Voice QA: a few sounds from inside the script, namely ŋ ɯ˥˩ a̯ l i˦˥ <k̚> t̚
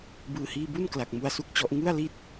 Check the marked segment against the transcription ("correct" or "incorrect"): incorrect